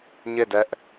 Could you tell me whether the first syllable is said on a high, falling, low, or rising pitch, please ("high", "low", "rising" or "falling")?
falling